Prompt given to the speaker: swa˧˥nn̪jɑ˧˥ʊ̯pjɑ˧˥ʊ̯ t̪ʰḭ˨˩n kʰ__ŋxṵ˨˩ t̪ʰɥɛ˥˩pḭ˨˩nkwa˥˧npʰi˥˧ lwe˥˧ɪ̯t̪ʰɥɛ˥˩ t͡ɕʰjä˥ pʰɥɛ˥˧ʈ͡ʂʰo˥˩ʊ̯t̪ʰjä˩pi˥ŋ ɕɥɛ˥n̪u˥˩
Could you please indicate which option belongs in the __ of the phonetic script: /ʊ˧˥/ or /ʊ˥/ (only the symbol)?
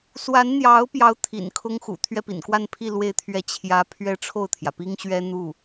ʊ˥